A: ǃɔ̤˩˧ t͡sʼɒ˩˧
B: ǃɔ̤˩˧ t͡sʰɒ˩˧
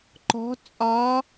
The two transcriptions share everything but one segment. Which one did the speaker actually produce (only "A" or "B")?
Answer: A